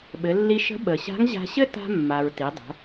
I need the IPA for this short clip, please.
ɓ ɘ˩˧ lː i˧ ʃ ə̤˧˥ ɓ ə˩ ɕ a̤˧˥ ŋ ʑ a̤˧ ɕ ɘ˥ t a̤˧ mː a˩ ɹ t i˩˧ dˤ ə̤˩˧

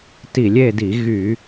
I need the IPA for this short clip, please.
t i˧˩˧ lʲ e˥˨ d i˧˩˧ ɣ y˧˩˧

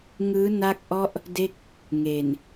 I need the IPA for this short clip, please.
ŋ ɯː˦˥ n a˥˩ k̚ ʔ ɔ˥˩ ʔ | d e˥˩ k̚ | ŋ e˨˩ n

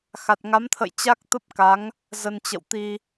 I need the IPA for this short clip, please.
x a˨˩ t̚ ŋ a˨˦ m t̪ʰ ə̰˧˨ j t͡ɕ a˦˥ k̚ t̪ ə˦˥ p̚ k a˨˦ ŋ | z ə˧ n t͡ɕ ə̰˧˨ w t̪ i˧

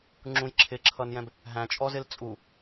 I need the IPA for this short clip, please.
ŋ͡ǁ ũ j ǁʰ ɪ ǁʰ ʌ n j ɛ̃ b | ɦ æ̃ t͡ʃʼ ɔ z ɪ l t͡sʼ u

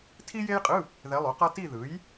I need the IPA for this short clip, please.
tʰ i˥ j e˥ j qʼ ɯ˧˥˧ | ð ɛ˧˥ lˠ u˩˥ q ʌ˥ t i˥˧ ð ɯ˩˥ j

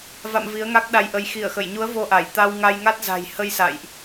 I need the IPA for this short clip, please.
v a̰˧˨ m v i˨˦ ə̯ ŋ a˦˥ k̚ ɗ a˧ j ʔ ə˧ j x i˧˩ ə̯ x ə˧˩ j ɲ u˨˦ ə̯ v o˧ ʔ a˧˩ j t̪ a˧ w ŋ a˧ j ŋ a˦˥ t̚ z a̤˨˩ j h ə˧ j s a̰˧˨ j ʔ

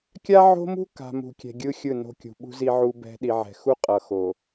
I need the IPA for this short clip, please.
kʲ a˦ ʕ o̤˦ m ṳ˦ k a̤˨ m ṳ˨ kʲ ɛ̤˨ ɡʲ ɯ˦ xʲ ɯ˦˨ n o̤˦ kʲ ṳ˨ ɓ ṳ˦ z i˦ ʕ u˦ b ɛ̤˦ ɗ i˨ ʕ ɛ̤˨ x u˦ qʼ ʌ˨ x o˨

